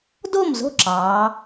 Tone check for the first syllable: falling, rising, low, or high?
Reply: falling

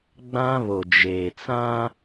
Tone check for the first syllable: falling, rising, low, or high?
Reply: high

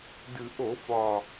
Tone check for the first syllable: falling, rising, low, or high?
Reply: low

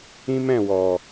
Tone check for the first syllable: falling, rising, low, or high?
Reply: high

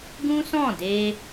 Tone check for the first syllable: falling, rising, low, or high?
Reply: high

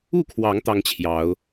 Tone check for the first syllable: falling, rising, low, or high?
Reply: falling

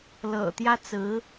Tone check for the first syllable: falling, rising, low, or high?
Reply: low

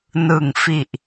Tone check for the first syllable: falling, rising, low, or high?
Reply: low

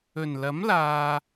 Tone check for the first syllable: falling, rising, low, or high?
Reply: low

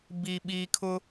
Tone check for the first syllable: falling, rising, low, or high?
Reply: low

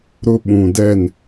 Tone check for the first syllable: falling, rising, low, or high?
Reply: high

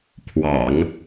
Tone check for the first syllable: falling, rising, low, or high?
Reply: low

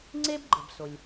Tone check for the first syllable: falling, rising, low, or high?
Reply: high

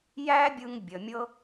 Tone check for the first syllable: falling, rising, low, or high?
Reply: high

